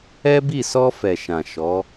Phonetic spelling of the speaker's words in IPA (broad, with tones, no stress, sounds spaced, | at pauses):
ɛ˦ b i˦˨ s ɔ˧ f ɛ˨ ʃ ã˨ ʃ ɔ˨˦